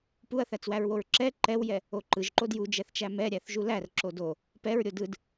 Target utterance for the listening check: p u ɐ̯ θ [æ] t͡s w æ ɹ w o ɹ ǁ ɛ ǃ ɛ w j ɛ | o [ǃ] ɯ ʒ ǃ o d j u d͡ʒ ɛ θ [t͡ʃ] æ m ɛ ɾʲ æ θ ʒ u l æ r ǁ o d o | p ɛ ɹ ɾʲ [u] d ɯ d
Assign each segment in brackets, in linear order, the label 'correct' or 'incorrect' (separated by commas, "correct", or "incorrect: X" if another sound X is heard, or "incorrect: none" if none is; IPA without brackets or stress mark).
correct, correct, correct, incorrect: o